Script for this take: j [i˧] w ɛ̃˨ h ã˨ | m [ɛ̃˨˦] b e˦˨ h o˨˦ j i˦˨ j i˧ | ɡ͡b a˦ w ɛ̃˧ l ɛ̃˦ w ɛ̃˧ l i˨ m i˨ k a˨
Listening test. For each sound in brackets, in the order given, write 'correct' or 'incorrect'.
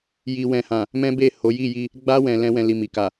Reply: incorrect: i˨, incorrect: ɛ̃˦

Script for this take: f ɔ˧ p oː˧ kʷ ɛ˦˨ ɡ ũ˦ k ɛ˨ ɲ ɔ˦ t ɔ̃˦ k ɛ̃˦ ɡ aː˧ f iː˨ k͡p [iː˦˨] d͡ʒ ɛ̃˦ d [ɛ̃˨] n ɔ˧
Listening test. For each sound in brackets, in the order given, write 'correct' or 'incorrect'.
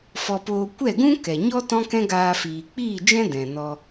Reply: correct, correct

